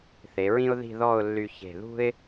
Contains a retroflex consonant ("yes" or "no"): no